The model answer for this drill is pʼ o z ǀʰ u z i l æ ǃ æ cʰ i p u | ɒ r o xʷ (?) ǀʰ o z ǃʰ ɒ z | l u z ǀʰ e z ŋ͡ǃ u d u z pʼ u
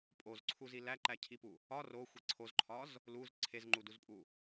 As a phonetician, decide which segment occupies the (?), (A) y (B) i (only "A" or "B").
B